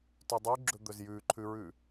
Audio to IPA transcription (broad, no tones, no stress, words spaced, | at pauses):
tʉdˤʉɡ͡ǁɵ d̪ɵzjʉǃʰʉɹʉ